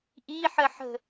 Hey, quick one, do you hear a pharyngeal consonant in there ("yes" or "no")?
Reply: yes